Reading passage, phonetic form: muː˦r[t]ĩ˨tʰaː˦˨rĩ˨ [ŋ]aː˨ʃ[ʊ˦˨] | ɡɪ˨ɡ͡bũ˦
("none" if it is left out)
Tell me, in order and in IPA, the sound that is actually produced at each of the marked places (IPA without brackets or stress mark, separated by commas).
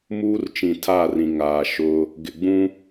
t͡ʃ, ŋ, ʊ˦